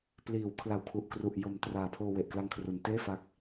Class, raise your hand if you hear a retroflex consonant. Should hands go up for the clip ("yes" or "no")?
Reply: no